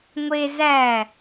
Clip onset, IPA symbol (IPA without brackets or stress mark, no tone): ŋʷ